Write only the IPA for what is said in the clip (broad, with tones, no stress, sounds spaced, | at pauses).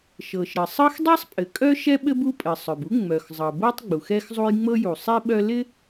ʃ ɤ˩ ʃ ɾ ɘ˩ sˤ ɤ˥ x dˤ ɛ˥ sˤ pʼ ɘ˩ kʼ œ˥ ʃ ɛ˥ ɓ ɘ˥ b u˥ pʼ ɘ˩ sˤ œ˩ b u˥ ŋ͡m œ˩ x zˤ ɤ˩ b ɤ˥ tˤ ɡ͡b u˩ x ɛ˥ x zˤ u˥ j ŋ͡m ɤ˥ j u˩ sˤ i˥ ɓ œ˥ l ɪ˥